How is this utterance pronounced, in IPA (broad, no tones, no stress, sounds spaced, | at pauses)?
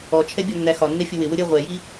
ɔ t͡ʃʰ ɛ bʲ ɒ nː æ x ɒ nː ɛ fʲ ʊ w ɪ w ʊ ɾʲ ɜ ʁʷ ɛ j i